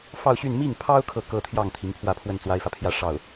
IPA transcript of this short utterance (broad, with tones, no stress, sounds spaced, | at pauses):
f ɑ˥˧ ʊ̯ ɕ y˥˧ n m i˥˩ ŋ pʰ ɑ˥ ʊ̯ kʰ ɤ˥˧ k ɤ˥˧ t̪ʰ j ɑ˥˩ ŋ t̪ʰ i˧˥ ŋ pʰ w ä˥˧ pʰ w ə˥˩ n t͡s w a˥ ɪ̯ f ä˨ pʰ j ä˥˧ ʂ ɑ˥˩ ʊ̯